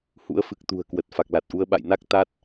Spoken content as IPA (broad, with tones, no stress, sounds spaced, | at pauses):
h ṵ˧˥ ə̯ f ɨ˨˩ k̚ t̪ ṳ˨˩ ə̯ k w ə˨˩ t̚ f a˨˩ k̚ l a˨˩ t̚ ʔ u˧ ə̯ ɓ a̰˧˨ j n a˦˥ k̚ t̪ a˦˥ t̚